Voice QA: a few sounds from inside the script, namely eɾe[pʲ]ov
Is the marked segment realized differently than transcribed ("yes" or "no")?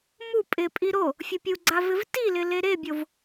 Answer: yes